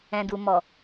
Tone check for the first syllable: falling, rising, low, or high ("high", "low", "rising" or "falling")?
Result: low